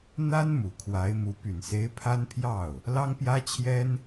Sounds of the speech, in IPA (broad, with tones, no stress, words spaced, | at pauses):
n̪a˥n mu˨˩kʰwa˧˥ɪ̯mu˧˥ py˨˩nse˧˥ɪ̯ pʰa˥npʰjɑ˥˩ʊ̯ | lɑ˥ŋpjä˥t͡ɕʰjɛ˥n